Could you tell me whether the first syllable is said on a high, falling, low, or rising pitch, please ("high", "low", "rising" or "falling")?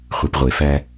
low